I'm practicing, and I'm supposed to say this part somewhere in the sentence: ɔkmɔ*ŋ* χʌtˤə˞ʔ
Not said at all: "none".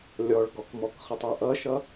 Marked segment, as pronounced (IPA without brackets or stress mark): k